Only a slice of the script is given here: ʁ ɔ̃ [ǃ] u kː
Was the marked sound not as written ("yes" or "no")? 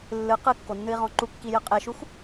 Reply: no